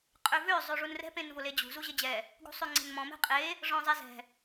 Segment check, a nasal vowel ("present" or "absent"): present